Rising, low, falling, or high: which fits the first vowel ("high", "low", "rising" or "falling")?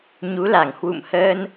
rising